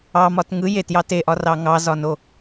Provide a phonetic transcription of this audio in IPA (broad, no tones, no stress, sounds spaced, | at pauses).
ɑ m ɒ t ŋ ɯ j e t j ɑ t e ʔ ɒ r ɑ ŋ ɑ z ɒ n o